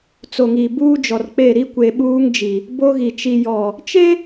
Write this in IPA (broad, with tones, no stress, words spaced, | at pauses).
t͡so˨ŋi˨ buː˦d͡ʒɔ˨r k͡pe˦˨ɾi˦ kʷe˨ɓuː˦ŋd͡ʒi˨ | bo˦ɣi˨ t͡ʃi˨jɔ˨ | t͡ʃe˦